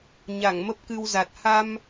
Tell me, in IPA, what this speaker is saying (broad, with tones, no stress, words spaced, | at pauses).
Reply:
ɲa˧˩ŋmə˦˥p̚kɨ˧wza˨˩t̚ ha˧m